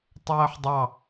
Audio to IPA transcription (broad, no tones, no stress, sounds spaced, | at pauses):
tˤ ɜː ħ dˤ ɑ